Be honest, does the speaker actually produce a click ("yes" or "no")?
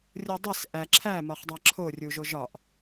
yes